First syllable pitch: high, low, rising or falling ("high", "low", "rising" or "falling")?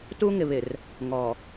high